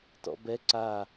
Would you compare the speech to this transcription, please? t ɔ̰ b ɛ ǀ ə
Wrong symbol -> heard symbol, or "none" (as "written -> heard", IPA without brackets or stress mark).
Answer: ə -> a